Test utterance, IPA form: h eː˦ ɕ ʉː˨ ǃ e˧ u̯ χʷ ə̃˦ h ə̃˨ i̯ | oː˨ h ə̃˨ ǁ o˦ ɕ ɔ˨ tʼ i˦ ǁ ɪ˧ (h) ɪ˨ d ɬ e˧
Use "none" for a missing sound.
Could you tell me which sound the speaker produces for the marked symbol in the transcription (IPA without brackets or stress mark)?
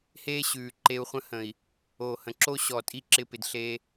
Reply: p